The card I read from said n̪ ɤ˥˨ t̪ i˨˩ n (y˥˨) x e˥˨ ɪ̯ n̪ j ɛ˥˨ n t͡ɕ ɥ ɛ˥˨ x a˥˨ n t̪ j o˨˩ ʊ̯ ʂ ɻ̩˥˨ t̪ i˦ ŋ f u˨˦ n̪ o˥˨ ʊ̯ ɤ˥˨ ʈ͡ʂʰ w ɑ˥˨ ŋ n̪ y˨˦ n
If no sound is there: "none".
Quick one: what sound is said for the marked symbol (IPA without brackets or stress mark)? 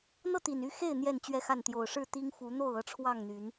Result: y˥˨